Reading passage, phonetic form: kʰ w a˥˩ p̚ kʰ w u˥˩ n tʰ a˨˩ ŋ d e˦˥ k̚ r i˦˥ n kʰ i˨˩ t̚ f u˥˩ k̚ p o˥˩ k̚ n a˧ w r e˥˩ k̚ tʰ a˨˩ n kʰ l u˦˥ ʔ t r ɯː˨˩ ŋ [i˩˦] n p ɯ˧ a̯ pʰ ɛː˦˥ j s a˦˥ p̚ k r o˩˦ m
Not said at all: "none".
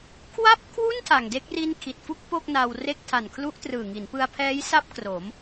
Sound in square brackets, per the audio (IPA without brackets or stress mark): i˩˦